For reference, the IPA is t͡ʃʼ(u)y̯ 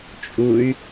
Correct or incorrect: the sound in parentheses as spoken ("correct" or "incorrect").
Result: correct